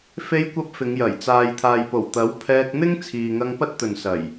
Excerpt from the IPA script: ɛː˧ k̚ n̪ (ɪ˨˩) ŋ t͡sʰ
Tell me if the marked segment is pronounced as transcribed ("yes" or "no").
no